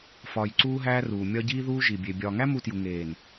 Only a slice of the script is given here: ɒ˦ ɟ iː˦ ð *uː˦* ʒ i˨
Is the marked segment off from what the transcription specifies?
no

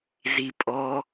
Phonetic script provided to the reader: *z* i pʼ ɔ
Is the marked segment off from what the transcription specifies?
no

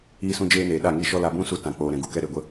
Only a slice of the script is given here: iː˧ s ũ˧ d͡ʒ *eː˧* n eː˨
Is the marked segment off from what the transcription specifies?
no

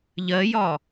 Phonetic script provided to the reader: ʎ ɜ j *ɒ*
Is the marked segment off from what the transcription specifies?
no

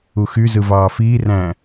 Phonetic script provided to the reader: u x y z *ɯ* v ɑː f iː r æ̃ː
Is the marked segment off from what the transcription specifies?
no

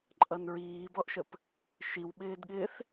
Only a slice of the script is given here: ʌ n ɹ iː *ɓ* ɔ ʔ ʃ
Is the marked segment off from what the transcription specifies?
yes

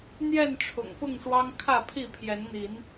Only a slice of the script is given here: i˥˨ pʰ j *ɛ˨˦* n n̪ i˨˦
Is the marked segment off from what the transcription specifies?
no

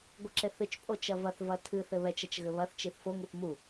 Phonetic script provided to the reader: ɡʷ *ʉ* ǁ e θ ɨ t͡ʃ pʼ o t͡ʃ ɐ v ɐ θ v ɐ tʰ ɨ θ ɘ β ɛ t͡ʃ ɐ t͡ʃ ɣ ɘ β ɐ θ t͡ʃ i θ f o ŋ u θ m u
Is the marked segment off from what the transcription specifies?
yes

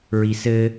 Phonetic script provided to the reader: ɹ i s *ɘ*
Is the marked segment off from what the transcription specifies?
no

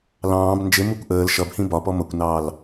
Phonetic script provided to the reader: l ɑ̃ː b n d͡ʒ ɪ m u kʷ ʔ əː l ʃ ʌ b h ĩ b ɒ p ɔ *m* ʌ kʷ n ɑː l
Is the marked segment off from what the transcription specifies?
no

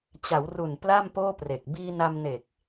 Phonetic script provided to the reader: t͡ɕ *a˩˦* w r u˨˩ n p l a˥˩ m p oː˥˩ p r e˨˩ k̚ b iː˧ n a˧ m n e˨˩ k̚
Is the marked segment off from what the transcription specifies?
no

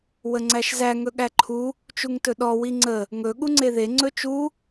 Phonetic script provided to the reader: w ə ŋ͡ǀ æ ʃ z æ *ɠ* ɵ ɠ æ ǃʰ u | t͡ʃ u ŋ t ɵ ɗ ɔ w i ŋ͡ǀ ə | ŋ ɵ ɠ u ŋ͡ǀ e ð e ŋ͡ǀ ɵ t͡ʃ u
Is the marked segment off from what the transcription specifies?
yes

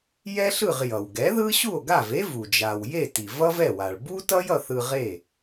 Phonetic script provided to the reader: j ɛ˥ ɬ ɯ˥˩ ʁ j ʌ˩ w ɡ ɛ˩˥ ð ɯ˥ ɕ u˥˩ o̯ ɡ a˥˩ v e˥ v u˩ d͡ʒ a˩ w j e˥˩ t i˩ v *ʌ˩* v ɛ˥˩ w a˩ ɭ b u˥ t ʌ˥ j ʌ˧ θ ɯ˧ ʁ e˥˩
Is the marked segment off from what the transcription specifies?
yes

